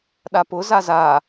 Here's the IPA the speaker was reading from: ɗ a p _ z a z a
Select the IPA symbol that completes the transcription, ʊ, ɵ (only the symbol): ʊ